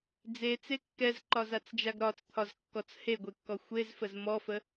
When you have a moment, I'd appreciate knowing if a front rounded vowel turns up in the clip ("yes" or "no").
no